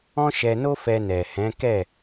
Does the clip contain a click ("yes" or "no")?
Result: no